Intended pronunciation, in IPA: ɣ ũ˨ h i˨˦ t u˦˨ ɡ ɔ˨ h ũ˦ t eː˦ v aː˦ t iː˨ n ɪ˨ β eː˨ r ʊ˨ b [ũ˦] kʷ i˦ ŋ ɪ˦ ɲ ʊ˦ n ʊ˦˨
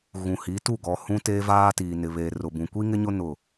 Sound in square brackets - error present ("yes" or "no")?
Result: yes